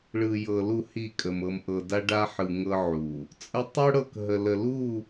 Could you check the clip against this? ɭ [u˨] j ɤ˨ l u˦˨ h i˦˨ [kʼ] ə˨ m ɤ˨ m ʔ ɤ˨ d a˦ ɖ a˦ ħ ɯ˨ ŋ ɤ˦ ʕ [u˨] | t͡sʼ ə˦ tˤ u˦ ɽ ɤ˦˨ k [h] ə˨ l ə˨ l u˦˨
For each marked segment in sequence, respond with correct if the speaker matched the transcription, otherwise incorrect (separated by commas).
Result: incorrect, correct, correct, incorrect